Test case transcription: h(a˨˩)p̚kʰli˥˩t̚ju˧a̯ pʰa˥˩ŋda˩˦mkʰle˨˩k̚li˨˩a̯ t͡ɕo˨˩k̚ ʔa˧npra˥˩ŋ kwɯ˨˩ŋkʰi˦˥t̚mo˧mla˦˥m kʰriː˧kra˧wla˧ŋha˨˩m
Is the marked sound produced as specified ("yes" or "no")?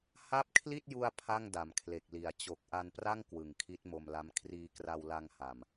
no